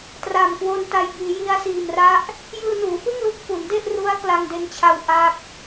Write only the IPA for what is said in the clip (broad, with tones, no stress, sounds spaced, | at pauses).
t r aː˨˩ m k w o˧ n t a˧ j b iː˩˦ j i˦˥ a̯ s iː˨˩ m r a˥˩ ʔ | j ɯː˧ n uː˩˦ f ɯ˥˩ ŋ l u˦˥ k̚ f u˩˦ n d e˥˩ ʔ r u˦˥ a̯ k l a˧ ŋ d e˧ n t͡ɕʰ a˧ w ʔ a˥˩ k̚